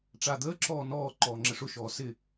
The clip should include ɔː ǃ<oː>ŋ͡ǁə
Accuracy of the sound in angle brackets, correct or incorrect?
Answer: incorrect: ɔː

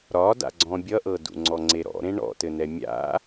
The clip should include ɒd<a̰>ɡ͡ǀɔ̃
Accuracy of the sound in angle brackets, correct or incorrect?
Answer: correct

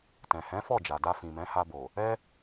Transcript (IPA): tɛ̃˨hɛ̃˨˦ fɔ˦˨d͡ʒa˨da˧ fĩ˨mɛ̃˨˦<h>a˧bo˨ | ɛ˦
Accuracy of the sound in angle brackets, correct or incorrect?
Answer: correct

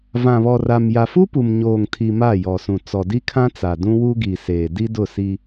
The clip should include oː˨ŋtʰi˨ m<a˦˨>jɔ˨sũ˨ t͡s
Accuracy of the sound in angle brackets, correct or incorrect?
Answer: correct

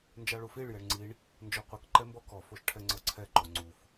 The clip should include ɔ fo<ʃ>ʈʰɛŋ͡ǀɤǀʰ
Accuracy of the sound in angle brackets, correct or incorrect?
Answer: correct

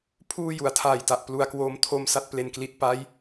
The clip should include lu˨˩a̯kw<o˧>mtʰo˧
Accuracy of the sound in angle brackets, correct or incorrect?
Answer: incorrect: oː˧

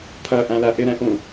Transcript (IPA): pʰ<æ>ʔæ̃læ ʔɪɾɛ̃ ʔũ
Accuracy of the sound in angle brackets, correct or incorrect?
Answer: incorrect: ɜ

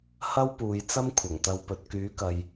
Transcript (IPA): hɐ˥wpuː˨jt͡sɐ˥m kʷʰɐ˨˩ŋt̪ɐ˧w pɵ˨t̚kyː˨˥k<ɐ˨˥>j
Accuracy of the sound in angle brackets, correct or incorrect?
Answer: incorrect: ɐ˨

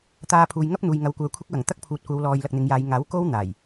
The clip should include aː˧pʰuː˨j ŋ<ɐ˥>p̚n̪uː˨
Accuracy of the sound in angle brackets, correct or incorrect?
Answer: correct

